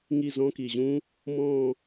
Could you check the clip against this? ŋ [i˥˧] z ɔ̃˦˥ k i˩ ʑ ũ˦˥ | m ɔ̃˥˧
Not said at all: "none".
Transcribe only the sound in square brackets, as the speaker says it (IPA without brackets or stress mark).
i˥˧